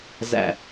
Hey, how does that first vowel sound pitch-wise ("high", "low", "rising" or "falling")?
low